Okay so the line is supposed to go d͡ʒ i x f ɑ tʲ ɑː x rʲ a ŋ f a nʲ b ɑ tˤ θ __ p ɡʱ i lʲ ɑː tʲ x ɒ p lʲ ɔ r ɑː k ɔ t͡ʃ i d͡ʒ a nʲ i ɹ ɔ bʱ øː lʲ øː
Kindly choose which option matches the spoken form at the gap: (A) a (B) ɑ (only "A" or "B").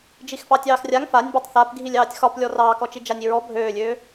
A